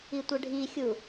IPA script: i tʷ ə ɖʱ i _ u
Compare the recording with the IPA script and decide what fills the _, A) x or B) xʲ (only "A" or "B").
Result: B